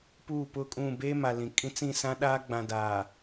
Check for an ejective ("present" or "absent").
present